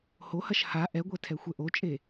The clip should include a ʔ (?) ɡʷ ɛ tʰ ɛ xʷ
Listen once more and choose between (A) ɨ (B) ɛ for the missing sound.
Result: B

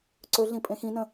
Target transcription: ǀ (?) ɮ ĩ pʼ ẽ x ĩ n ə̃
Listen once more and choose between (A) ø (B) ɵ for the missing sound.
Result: B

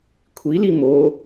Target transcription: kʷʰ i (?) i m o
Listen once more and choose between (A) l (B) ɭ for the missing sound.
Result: A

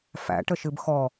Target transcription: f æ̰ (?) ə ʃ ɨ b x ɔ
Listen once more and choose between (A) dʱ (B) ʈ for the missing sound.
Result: B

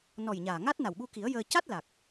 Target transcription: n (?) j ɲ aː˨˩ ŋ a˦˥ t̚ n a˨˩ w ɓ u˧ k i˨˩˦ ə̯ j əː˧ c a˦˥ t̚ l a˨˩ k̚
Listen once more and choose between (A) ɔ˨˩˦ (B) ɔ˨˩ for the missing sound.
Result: B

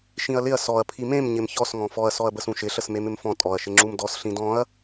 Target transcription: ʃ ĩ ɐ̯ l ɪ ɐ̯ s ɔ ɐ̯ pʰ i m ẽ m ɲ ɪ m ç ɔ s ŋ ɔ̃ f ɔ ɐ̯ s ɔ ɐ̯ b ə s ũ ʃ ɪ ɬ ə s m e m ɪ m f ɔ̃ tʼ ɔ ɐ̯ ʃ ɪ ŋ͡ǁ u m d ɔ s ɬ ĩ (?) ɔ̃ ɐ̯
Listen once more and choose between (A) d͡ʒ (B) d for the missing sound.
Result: B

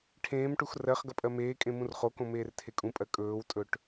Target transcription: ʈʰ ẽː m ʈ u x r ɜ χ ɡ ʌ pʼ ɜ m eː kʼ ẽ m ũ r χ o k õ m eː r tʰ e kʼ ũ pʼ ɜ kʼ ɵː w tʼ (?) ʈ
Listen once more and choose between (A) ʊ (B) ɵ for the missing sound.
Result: B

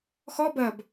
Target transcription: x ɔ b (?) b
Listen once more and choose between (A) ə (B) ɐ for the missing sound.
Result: B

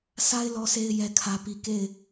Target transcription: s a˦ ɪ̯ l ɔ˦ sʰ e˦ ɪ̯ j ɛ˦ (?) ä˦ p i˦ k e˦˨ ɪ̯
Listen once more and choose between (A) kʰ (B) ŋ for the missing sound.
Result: A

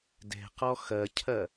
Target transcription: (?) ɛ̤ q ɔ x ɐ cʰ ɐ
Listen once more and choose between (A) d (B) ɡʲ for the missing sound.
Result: A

